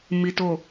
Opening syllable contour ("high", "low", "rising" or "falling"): low